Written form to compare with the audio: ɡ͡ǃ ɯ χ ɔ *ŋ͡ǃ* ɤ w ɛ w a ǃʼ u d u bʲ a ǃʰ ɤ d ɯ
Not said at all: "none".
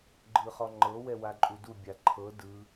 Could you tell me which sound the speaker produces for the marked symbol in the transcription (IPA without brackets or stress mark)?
ŋ͡ǃ